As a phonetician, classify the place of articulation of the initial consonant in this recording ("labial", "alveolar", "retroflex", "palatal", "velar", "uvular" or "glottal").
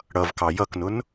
retroflex